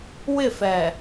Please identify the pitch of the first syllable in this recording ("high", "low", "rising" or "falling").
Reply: falling